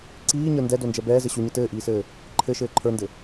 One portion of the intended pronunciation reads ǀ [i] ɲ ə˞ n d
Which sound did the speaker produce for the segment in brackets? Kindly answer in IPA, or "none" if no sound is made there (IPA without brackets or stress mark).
iː